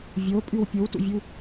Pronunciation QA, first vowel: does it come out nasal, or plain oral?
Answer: oral